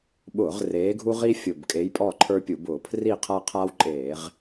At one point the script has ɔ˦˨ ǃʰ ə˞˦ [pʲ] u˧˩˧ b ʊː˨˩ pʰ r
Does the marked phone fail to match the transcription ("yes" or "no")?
no